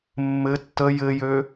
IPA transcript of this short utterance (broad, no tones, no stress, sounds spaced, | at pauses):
mː ɘ tː ə j ɘ j ø